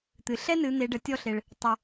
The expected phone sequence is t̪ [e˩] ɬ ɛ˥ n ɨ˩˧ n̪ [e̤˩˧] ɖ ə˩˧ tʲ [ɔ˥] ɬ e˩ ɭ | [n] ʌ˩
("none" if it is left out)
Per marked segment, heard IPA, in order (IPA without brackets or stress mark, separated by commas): ɨ˩, e˩˧, ɔ˧, tˤ